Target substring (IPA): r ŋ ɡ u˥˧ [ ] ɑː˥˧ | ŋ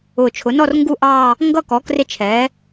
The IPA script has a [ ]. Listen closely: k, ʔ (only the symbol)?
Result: ʔ